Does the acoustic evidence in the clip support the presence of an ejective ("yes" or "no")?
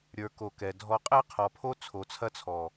yes